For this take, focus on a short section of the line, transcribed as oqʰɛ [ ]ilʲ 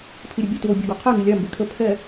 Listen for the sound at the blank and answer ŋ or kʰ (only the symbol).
ŋ